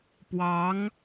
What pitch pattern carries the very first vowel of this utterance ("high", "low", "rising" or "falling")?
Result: rising